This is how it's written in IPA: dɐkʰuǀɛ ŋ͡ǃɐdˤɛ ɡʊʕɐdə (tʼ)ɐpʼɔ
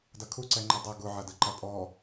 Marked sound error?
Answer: yes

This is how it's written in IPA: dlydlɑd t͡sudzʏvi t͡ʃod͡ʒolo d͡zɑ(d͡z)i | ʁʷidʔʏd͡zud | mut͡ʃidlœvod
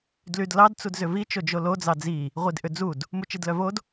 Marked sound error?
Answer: no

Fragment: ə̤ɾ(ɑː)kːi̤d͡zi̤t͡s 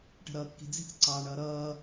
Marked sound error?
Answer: yes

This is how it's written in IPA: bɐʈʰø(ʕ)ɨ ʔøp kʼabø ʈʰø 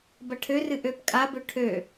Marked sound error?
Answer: yes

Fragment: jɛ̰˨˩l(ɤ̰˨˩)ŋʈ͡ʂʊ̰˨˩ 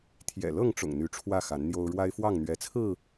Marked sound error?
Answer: yes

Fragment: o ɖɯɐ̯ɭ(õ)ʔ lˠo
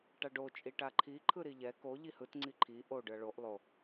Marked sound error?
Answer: yes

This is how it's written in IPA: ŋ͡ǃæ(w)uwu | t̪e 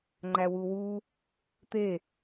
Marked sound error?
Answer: no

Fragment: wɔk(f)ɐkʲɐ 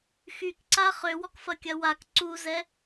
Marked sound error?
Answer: no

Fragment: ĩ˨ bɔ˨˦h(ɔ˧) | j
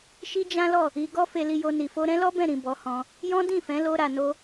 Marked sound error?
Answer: yes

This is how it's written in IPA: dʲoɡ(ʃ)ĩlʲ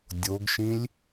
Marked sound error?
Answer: no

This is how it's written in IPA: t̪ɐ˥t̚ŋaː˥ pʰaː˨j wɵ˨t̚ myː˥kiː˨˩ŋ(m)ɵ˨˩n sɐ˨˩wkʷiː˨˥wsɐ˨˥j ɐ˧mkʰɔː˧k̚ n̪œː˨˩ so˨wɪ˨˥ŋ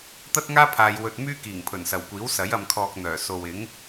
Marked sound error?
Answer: yes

